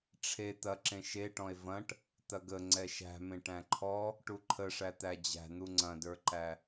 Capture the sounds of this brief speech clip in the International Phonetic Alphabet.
ʈ͡ʂʰ e t̪ ɐ ǁ ẽ ʃ e ʈ ɔ̃ e̯ v ɐ̃ ʈ | t̪ ɐ ɡ ə ŋ͡ǀ ɛ ʃ æ̤ m ẽ ʈ æ̃ ǃʰ ɔ | ʈ u ǃʰ ə ʂ æ t̪ æ d͡ʑ æ̤ n̪ u ŋ͡ǀ ɐ̃ d ə˞ ǃ æ

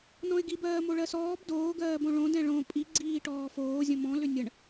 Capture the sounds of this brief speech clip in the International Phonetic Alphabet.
n ɔ̃ ɪ̯ ɡ i b ɜː m o ɭ ɜ s ɔː b d oː ɡ ɜː b õ ɭ õ d ɛ̃ ɭ õ pʼ i ɡ͡ǀ iː ʈ ɔː f oː zʲ ə̃ m ɔ̃ l ʏ nʲ ə ɳ

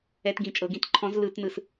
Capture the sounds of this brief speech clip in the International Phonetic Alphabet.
ɛ˧˩˧ t ɡ ĩ˨˩ t͡ʃʼ ɤ˩˧ ɡ ĩ˨˥ t ǃʰ ɔ̃˨˥ z l ɯ˧˩˧ t n ɯ˨˩ s

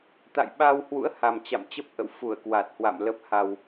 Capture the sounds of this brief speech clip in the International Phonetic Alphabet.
t̪ a̰˧˨ j ɓ a˧ w h w ṵ˧˥ ə̯ h a˨˩ m t͡ɕ a̰˧˨ m t͡ɕ ə˦˥ p̚ ʔ ə̰˧˨ w f u˧˩ ə̯ k w a˨˩ t̚ h w a̰˧˨ m l ə˦˥ p̚ h a˧ w

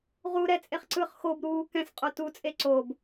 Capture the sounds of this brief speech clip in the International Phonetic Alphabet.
ʁ u ɾ ɛ t͡sʼ e χ ǀ ɯ χ x o b ɾ uː k ɛ̃ s qʼ o t u t͡sʼ e ǀ o b

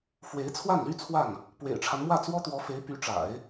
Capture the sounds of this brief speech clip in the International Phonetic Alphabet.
f w e˧˥ ɪ̯ t͡sʰ w a˥˩ n l y˥ t͡sʰ w a˥˩ n | p w ḛ˨˩ ɪ̯ ʈ͡ʂʰ a˦ n m w ä˥˩ t͡s w ɔ˥ t̪ w ɔ˧˥ f e˧˥ ɪ̯ p y˧˥ ʈ͡ʂ a̰˨˩˦ ɪ̯

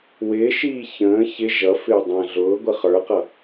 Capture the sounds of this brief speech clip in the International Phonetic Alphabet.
w ɪː ʃ iː ç ə̃ː ç ɪ ʒ ʌ f ɪː dˤ ə̃ː ɮ ʊː ɡʷ ə χ ə˞ q ʌ

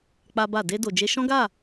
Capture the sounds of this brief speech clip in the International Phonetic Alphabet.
k͡p a˦ b a˦˨ d e˧ d o˨ d͡ʒ e˧ ʃ ɔ̃˦ ɡ a˦˨

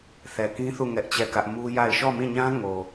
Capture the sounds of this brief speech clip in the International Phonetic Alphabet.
θ ɛ˨ k ĩ˦ θ u˦˨ ŋ ɛ˦ ʔ t͡ɕ ɛ˦˨ k ä˦ ʔ m u˦ j a˦˨ ɪ̯ ʃ ɔ˦˨ m ĩ˦˨ ɲ ã˦ ŋ o˨

